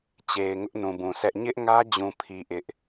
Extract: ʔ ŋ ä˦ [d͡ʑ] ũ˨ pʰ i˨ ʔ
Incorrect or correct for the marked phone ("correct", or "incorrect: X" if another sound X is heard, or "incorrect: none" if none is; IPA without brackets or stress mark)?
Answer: correct